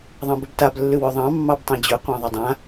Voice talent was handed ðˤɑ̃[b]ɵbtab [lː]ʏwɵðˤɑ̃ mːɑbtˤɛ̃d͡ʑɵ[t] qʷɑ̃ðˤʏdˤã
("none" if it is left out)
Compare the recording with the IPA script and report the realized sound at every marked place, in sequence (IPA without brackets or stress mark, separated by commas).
b, lː, none